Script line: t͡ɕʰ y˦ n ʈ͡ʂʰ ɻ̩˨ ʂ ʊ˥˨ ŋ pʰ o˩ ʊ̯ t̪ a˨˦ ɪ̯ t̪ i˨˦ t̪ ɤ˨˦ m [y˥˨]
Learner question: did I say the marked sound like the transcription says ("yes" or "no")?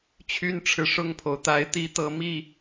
no